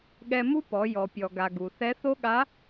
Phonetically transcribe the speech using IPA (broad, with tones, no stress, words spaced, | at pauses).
ɠɛ˧mu˥pɔ˩˧ jɔ˩pʲɔ˩ɡa˩ ɡu˩θɛ˧˥θo˥ ɠa˧˥